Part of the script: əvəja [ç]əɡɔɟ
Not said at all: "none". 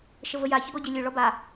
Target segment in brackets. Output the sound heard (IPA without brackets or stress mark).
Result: ç